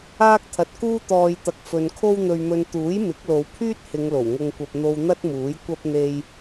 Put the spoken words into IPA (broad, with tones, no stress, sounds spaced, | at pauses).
aː˥ k̚ t̪ʰ ɐ˨ t̚ k uː˥ t̪ ɔː˨ j t̪ ɐ˨ k̚ f ɵ˨ n kʰ o˥ w n̪ ɵ˧ ɥ m ɵ˧ n t̪ uː˨˥ j m ɪ˨˥ k̚ l o˨˧ w pʰ yː˥ t̚ h ɪ˨˧ ŋ l o˨˩ w ŋ ʊ˧ ŋ kʷ ɐ˧ p̚ n̪ o˧ w n̪ ɐ˥ t̚ m uː˨˥ j kʷ ɐ˥ p̚ n̪ e˧ j